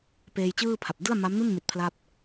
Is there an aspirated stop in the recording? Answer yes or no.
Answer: yes